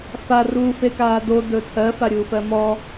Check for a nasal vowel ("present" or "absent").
absent